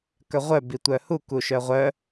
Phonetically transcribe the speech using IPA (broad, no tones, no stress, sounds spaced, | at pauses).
k œ ʁʷ œ b i tʷ œ h u k u ʃ œ ʁʷ œ